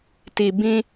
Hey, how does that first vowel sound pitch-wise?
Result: low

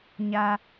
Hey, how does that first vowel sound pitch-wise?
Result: high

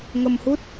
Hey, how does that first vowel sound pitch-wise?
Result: low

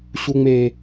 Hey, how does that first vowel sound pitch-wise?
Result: high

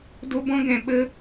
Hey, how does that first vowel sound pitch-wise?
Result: high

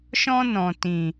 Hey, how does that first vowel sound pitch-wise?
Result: high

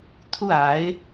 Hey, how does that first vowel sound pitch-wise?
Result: falling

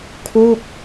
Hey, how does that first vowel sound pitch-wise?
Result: falling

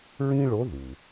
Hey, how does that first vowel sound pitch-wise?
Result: high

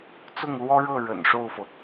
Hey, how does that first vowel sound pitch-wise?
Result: falling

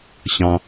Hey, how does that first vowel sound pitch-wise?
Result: low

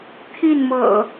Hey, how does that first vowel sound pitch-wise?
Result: falling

